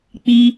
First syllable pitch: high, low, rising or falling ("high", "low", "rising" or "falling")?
high